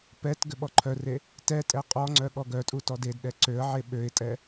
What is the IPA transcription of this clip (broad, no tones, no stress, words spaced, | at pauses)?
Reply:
pɛt ɡʏɓɔǃʰœre | tɛtʼɛ qʼɔŋ͡ǀœ ɠɔɡœtʼu tɔdedɗɛ ǀøə̯ʕe ɓøɪ̯tʼɛ